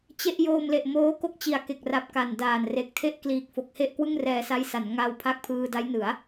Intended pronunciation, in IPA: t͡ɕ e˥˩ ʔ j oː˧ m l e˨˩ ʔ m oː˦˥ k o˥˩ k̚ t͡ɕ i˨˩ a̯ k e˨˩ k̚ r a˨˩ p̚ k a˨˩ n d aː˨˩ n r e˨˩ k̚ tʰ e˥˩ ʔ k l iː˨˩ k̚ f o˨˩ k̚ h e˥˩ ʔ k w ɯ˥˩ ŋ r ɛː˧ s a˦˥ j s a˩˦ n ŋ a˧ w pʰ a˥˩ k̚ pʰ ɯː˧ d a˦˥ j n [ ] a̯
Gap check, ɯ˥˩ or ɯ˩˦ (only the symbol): ɯ˩˦